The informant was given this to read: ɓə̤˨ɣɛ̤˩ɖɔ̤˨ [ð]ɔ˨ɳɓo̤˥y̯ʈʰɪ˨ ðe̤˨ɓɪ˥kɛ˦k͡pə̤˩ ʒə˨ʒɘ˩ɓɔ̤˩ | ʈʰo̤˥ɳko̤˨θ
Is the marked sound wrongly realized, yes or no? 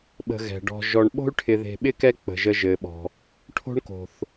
yes